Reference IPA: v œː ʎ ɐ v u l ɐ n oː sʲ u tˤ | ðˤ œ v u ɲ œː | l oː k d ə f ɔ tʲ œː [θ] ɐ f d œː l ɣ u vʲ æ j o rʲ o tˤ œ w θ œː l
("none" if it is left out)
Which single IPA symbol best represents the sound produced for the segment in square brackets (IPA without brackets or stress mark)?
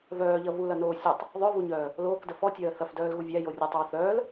θ